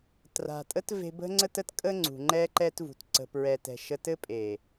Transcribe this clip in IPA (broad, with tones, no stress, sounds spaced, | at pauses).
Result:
t r a̤˨ tʼ ə˦ t v e̤˧ b ə̤˦ ŋ͡ǀ ə˦ t ə˦ t kʼ ə˦ ŋ͡ǀ ṳ˨ ŋ͡ǃ ɛ˦ ǃ ɛ˦ t v ṳ˨ t ǀ ə̤˧ p ɹ ɛ˧ t ɛ̤˧ ʃ ə˦ t ɘ˦ pʼ e˨